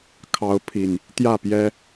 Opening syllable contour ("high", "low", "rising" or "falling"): rising